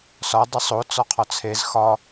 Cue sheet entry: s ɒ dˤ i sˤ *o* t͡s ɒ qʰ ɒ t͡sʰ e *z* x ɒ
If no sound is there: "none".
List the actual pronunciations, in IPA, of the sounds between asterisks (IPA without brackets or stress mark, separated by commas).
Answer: o, z